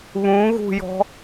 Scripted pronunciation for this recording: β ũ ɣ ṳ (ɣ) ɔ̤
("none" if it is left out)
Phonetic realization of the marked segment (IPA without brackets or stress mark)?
j